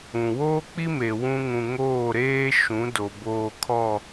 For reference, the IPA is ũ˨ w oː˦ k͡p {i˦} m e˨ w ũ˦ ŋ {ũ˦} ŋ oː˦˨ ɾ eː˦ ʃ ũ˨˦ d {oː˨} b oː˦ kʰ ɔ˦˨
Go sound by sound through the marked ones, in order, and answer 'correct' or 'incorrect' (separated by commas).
correct, incorrect, incorrect